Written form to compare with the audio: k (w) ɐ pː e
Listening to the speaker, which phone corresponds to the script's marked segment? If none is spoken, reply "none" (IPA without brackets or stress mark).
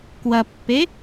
w